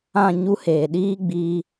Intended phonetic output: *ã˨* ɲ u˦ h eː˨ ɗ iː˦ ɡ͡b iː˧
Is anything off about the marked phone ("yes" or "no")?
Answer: yes